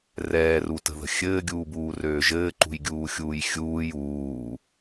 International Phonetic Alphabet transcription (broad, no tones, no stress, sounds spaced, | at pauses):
r ɛː r u t ə̤ ð ə̤ xʲ ɘː ɡʲ uː b uː r øː ʒ ɘː ǃ ṳ j ɡʲ uː xʲ uː j xʲ uː j uː